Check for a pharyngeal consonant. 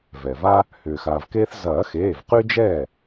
absent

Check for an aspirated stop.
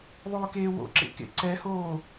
absent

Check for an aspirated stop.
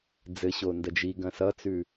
absent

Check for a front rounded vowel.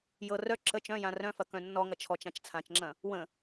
present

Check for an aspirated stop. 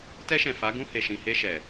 absent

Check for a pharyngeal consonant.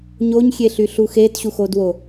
absent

